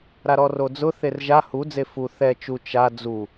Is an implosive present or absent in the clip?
absent